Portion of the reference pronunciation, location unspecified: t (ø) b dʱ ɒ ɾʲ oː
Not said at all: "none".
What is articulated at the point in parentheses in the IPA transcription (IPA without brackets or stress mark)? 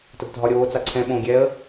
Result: ə